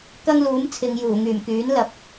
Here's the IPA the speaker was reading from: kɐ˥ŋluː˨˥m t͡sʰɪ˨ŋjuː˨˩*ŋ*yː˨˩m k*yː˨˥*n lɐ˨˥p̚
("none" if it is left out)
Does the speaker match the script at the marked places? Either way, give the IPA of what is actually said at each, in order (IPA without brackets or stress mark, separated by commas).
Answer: ŋ, yː˨˥